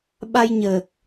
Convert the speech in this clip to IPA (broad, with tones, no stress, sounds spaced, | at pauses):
ɓ a˧ j ɲ əː˨˩ k̚